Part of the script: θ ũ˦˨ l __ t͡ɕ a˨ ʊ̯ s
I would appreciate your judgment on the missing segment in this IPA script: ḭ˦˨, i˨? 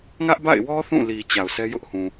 i˨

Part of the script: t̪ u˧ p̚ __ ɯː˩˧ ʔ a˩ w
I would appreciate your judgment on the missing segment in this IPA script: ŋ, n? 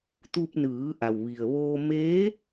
n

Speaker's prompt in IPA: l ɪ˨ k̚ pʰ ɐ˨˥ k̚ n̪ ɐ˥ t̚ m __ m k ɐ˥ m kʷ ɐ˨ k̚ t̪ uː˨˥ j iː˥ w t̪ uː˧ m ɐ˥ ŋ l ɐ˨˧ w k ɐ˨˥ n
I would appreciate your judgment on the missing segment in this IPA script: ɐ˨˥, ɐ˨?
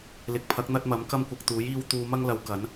ɐ˨˥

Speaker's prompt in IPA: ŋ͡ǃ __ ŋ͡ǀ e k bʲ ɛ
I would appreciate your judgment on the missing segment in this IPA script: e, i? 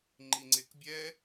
i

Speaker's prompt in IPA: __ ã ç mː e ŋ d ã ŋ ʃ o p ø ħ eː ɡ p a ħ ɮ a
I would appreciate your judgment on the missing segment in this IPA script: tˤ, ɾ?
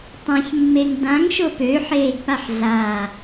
tˤ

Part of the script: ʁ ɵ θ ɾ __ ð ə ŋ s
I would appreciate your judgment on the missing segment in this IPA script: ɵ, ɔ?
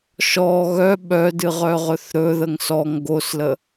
ɵ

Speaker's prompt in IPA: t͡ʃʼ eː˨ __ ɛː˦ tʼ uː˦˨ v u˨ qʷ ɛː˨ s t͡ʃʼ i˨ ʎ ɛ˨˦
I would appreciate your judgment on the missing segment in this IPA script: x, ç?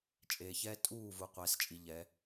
ç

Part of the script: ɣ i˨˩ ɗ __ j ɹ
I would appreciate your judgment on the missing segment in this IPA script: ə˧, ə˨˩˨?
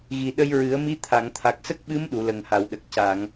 ə˧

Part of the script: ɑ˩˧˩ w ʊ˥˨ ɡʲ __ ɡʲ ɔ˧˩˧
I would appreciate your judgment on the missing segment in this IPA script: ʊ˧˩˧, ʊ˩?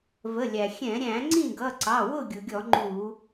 ʊ˩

